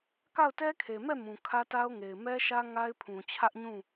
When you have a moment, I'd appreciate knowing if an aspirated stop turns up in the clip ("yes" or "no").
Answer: yes